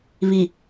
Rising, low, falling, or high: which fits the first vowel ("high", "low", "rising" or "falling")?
low